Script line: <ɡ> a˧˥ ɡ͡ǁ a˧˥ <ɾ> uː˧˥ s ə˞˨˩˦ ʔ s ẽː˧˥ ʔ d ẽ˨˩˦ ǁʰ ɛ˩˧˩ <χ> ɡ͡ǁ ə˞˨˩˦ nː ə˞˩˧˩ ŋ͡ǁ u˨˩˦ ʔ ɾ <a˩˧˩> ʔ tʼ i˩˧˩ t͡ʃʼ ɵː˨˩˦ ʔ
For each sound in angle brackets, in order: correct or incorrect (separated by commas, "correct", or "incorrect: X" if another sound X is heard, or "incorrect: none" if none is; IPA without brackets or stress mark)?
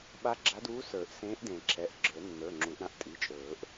incorrect: ɓ, incorrect: d, incorrect: ʔ, incorrect: ã˩˧˩